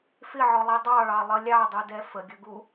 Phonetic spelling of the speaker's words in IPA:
f ɪ ʕ ɔ lˠ i dˤ ɑ ɭ ɑ lˠ ʌ lʲ ɑ dˤ u d ɛ f ə ɡʲ ʌ ɡ u

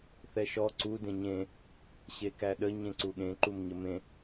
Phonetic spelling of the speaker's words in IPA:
θ ɛ ʃ ɔ ǀ u d ẽ ɲ ẽ | ɕ e k æ ɗ ə ɲ ẽ ǀ u ɠ ẽ ǃ u m ɲ ə m ẽ

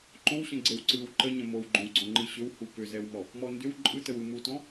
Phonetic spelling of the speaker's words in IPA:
ǃ õ w ɕ ə̃ ɡ͡ǀ e w ǀ ɯ w ǃ ə ɲ ə̃ m o w ɡ͡ǃ õ w ɡ͡ǀ ɔ̃ ŋ͡ǃ ɯ ɕ ʏ w h u p ʏ z ɛ w m ɔ | m ɔ n d ʏ w ǃʼ ɯ t ə w ɯ m u t ɔ̃

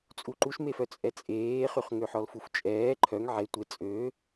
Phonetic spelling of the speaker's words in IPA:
t͡sʼ u ǃ u ʃ m e f œ t͡sʼ ɛ t͡sʼ eː χ y χ ŋ ø ħ ɔ l f u f t͡ʃʼ ɛː ǃʰ œ ŋ ʕ e tʷ e t͡sʼ ø

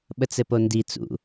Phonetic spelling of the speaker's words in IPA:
ɓ ə t͡s ɘ p o n d i t͡s ṵ

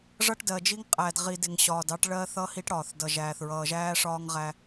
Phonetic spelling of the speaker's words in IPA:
ʐ ʌ˦ ʈ d ɜ˨ d͡ʒ i˦ ŋ qʼ æ˨ d ʁ i˨ d ɪ˨ ŋ ɕ ɒː˨ d ɑ˦ ʈ ɭ ɜ˦ θ ʌ˦ h i˦ ʈ ɽ ɒː˨ θ d ʌ˨ ʒ æː˨ θ ɹ ʌː˨ ʒ æː˦ ʂ ɒː˦ ŋ ʁ æ˦

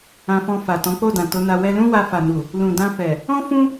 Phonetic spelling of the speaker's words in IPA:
ã˧ f ɔ̃˧ f a˨ t ɔ̃˨˦ k͡p o˦˨ d ã˨ t o˨˦ n a˧ w ɛ˧ l ũ˦ w a˧ f a˨ n u˨ | l ũ˨ d ã˧ f ɛ˨ | ɔ̃˦ f ũ˦

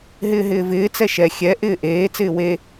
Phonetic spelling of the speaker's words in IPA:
ɦ ɪː ɦ ɪː v ɪː t͡s ɛ ʃ ɛ xʲ ɛ ʔ ɪː ʔ eː t͡s ɪː w e

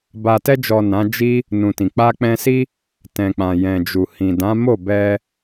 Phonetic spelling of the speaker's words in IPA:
b a˨ t ɛ˧ d͡ʒ ɔ˨ n ã˨˦ d͡ʒ i˦ | n ũ˨ t ĩ˨ k͡p a˧ k͡p ɛ̃˧ s i˦ | t ɛ̃˨ k͡p ã˨ j ɛ̃˨ d͡ʒ u˨ h ĩ˨ d ã˨˦ m o˦˨ b ɛ˧

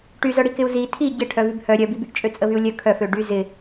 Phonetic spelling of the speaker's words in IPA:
ʈ y z œ ɽ i k ɪ u̯ z i tʰ i ɟ ɪ ʈʰ œ v y b h œ ɾʲ œ b i b y ʔ t͡ʃʼ ø t͡sʼ ə v y u̯ lʲ œ kʰ œ f ø ɖ y z ɪ

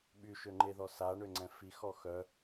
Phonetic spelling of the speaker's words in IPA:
ɓ y ʃ ø ŋ͡ǃ e ð ɔ s a ɳ ø ŋ͡ǀ ɛ̃ f i x ɔ x œ

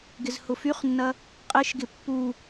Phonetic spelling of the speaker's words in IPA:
ɡ ɪ z h ʊ f y χ nː ɐ | qʼ ɪ ʃ ɡ ɪ pː u

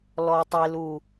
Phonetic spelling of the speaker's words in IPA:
l ɔ˧ tˤ e˧ l u˨˩

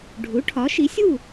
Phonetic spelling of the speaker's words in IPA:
ɖʱ u˩˥ ʈʰ ɒ˩˥ ʃ i˩˥ sʲ u˥˨

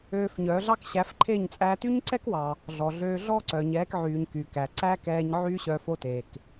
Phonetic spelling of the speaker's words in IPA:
øː˧ f ɲ œ˨˦ ɮ ɑ˦ k ɕ æ˨˦ f ǃʰ e˦˨ ɲ t͡sʼ æ˧ t y˦ ɲ ǀ ɛ˦ k w ɑ˨ | ɮ ɔ˨ ɮ øː˧ ɮ ɔ˦ ǀ œ˨ ɲ ɛː˨˦ k ʕ yː˨ ɲ k y˨ k æ˨ ǀ æ˦ k ɛː˧ ɲ ʕ yː˦ ɕ œ˧ f o˦ t eː˨ k

